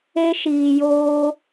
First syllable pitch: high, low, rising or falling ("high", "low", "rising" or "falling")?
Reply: high